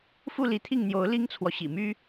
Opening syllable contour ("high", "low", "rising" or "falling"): falling